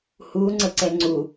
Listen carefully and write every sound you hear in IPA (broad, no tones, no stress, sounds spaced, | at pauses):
h u ŋ͡ǀ ə ǀ ɛ ŋ͡ǀ u